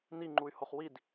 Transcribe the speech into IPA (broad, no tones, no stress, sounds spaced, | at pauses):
n i ŋ͡ǃ u y̯ h o χ w i d